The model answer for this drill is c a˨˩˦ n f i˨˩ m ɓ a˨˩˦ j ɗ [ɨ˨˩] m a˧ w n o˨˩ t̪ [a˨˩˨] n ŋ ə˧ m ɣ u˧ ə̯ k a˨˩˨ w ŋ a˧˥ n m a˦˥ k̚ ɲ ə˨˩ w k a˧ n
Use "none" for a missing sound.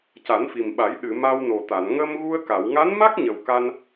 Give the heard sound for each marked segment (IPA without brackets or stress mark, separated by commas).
ɨ˨˩˨, a˨˩˨